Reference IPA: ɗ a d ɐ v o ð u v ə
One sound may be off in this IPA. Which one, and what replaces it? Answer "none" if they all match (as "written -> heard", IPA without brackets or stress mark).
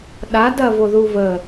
none